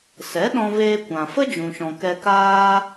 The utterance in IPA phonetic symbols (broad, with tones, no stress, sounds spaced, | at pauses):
s ɛ˨˦ ɗ ɔ̃˧ v eː˧ kʷ ã˨ f ə˦ d͡ʒ ũ˨ ʃ ɔ̃˨ k ɛ˧ k aː˦